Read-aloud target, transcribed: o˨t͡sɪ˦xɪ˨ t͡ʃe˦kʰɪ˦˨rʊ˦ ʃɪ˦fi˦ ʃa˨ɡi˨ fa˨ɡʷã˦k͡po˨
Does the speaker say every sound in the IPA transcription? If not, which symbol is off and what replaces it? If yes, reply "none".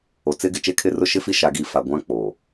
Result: x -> ɡ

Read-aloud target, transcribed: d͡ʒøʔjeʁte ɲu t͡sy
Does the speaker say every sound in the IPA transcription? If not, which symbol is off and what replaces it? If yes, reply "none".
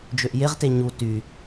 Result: t͡s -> t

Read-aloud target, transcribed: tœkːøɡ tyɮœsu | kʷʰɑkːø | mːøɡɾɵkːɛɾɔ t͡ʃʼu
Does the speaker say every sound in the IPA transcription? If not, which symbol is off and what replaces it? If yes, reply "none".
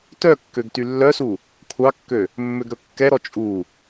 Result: ɮ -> lː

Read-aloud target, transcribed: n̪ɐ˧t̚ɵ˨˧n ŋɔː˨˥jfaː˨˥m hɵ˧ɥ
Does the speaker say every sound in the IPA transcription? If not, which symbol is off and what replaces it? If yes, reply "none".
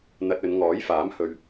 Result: none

